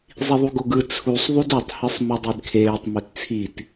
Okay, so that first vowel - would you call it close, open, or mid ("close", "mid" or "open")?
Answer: close